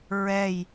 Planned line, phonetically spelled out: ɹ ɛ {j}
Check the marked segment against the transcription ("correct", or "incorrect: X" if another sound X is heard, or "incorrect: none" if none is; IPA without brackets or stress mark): correct